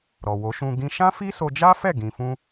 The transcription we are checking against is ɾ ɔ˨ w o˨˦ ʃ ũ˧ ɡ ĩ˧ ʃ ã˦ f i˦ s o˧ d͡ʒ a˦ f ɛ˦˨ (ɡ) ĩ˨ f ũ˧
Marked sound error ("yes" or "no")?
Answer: no